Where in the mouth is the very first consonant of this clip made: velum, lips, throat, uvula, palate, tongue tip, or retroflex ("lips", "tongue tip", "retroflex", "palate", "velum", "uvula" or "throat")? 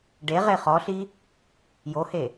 retroflex